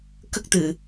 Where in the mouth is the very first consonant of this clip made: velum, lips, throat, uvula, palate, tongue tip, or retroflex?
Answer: velum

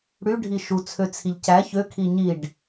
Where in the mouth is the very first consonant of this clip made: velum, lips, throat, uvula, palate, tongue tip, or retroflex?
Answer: retroflex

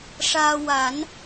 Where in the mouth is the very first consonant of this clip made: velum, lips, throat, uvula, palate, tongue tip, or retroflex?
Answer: retroflex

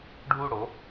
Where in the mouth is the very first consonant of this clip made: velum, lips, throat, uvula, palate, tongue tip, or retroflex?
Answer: retroflex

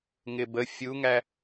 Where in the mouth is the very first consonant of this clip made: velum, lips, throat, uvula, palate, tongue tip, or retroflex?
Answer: velum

